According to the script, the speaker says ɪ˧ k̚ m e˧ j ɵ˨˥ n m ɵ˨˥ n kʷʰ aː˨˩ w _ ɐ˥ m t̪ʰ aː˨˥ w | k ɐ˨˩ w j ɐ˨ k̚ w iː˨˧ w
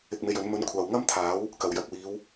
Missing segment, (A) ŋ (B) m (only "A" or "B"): A